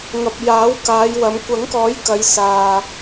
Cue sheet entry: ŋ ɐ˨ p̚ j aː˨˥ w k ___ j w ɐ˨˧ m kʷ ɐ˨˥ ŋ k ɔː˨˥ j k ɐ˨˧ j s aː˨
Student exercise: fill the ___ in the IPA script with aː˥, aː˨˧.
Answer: aː˨˧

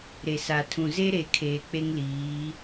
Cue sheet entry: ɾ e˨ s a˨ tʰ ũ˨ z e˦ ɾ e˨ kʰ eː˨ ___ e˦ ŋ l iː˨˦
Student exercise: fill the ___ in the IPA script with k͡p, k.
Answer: k͡p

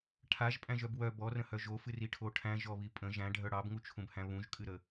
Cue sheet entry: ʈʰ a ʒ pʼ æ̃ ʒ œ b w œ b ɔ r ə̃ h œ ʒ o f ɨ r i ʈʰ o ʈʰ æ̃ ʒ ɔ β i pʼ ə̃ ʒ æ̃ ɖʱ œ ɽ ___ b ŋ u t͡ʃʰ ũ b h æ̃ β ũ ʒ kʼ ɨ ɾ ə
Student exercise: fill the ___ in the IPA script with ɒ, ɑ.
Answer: ɑ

